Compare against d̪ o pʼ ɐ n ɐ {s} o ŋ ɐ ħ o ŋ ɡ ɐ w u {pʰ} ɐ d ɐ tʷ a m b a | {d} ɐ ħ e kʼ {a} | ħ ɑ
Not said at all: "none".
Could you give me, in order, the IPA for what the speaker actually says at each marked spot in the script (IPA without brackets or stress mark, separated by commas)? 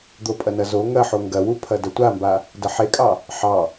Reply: z, pʰ, d, ɑ